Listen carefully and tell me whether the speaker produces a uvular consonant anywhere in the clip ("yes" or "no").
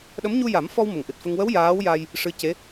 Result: no